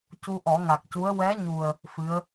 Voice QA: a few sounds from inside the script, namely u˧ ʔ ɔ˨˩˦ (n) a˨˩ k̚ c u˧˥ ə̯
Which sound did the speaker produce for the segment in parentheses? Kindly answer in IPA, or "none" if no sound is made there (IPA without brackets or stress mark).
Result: ŋ